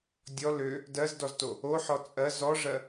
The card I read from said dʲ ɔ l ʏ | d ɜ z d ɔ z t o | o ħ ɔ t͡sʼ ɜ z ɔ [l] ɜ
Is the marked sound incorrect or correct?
incorrect